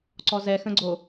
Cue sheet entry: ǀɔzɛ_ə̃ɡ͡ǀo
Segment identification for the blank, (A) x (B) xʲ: A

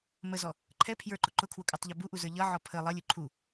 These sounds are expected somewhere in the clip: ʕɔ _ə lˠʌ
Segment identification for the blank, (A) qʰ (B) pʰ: B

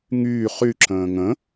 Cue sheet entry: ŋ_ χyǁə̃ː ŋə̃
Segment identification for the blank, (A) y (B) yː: B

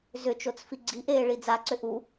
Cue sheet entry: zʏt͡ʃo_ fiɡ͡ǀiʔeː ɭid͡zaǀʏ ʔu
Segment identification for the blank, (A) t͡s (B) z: A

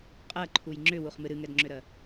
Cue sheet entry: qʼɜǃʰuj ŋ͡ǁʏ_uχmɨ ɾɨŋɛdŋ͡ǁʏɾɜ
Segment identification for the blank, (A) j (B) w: B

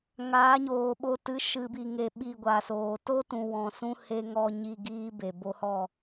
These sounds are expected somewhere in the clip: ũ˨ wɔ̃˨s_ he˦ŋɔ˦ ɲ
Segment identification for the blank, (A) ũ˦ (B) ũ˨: A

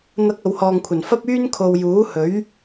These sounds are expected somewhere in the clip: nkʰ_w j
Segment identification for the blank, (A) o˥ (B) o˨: B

